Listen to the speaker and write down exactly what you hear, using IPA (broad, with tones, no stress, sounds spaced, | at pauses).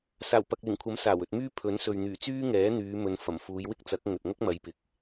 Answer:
s aː˨˩ w p ɐ˨ k̚ l ɪ˨˩ ŋ kʷʰ ɐ˨˥ m s aː˨˩ w ɵ˧ t̚ m yː˥ pʰ ɵ˨˥ n s ɵ˨ ɥ n̪ yː˨˩ t͡s yː˥ ŋ ɛː˨˥ n̪ yː˨˧ m ɵ˨˧ n f ɐ˨˩ m f uː˨˧ j w ɪ˥ k̚ t͡s ɐ˨˥ k̚ ŋ ɵ˨ t̚ ŋ ɐ˥ k̚ m ɐ˨˧ j p ɪ˨˥ k̚